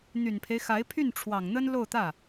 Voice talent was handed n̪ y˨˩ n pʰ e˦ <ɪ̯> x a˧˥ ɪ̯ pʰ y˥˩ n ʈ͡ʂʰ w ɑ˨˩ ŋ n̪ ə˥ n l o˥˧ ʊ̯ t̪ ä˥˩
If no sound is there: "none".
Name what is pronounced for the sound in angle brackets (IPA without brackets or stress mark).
ɪ̯